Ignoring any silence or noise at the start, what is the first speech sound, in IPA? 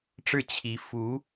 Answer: ʈ͡ʂ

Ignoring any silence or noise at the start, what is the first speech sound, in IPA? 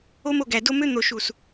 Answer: o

